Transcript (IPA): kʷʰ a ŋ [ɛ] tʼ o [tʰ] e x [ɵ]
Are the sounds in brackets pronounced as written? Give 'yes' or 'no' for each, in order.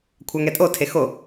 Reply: yes, yes, no

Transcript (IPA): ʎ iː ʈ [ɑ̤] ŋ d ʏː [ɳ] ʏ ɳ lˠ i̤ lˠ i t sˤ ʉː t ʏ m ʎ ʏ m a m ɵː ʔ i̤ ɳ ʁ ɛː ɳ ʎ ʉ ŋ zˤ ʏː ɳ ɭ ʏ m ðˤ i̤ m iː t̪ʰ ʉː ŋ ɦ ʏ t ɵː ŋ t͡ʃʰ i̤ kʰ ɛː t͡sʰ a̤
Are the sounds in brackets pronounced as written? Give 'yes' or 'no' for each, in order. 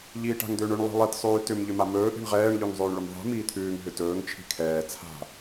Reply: no, yes

